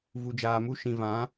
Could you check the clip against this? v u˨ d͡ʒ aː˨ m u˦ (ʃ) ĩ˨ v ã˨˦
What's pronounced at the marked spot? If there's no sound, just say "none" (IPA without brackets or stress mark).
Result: ʃ